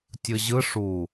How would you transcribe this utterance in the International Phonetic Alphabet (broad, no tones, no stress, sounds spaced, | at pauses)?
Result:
tʲ ɯ ʑ ɯ ʂ u